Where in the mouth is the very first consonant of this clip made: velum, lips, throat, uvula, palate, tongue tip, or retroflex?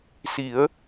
tongue tip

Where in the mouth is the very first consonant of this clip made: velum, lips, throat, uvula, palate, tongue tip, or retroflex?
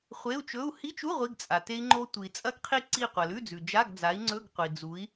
uvula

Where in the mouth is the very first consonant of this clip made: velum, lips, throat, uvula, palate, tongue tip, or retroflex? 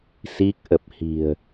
tongue tip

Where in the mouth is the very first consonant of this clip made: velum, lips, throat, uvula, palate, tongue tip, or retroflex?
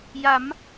palate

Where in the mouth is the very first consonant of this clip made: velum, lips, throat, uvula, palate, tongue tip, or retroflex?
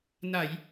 tongue tip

